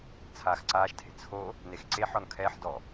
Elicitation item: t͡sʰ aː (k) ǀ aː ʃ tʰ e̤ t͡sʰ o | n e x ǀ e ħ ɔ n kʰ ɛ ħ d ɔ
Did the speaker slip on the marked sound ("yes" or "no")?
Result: yes